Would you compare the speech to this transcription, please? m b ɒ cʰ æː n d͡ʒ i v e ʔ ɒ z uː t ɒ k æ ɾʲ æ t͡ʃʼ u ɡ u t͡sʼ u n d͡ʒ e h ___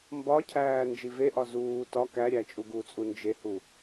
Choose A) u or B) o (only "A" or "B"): A